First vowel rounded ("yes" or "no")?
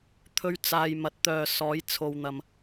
yes